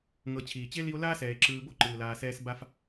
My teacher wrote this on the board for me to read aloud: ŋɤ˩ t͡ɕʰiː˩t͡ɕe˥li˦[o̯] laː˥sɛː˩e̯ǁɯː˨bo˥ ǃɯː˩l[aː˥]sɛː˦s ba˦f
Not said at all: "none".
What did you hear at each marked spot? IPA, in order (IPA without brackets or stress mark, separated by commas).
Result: o̯, aː˨